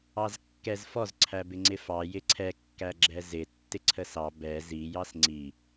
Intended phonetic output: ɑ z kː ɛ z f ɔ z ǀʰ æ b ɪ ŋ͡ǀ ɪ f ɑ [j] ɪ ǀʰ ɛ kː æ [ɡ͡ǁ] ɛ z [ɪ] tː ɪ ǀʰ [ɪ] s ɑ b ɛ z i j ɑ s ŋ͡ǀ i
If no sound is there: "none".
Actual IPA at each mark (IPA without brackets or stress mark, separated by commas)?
j, ɡ͡ǁ, ɪ, ə